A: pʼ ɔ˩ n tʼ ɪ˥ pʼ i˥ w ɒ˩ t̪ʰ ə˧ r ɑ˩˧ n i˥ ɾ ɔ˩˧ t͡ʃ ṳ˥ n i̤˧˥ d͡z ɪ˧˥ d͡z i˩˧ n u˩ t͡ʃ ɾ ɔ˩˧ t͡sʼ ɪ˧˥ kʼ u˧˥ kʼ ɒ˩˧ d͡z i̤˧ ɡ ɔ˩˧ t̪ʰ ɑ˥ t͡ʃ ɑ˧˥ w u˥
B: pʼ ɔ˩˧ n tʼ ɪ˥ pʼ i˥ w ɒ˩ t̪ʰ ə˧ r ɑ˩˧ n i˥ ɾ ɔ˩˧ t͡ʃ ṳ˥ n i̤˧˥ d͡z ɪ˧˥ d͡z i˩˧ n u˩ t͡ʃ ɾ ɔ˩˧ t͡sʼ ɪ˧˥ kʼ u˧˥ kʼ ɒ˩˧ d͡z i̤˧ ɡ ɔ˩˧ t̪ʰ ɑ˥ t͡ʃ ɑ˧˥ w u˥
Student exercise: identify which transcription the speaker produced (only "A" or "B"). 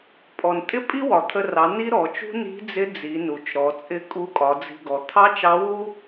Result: A